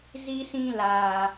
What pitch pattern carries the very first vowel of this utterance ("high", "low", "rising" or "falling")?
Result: high